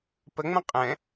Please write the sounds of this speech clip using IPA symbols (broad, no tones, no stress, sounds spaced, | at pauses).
p ə ŋ͡m ə̃ qʼ ɛ̃